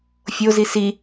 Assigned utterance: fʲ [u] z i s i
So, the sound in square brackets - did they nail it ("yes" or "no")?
no